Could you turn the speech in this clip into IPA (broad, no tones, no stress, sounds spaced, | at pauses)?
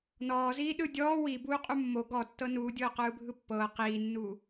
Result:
n ɔː z iː ɗ ɯ dʲ ɔː w i b uː qʼ u mː o ɡ ɔ tː ɤ n uː dʲ ɤː q ɯː bʱ ɯ pː ɤː q iː nː uː